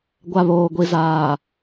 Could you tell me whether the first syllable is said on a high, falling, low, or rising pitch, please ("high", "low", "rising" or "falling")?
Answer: low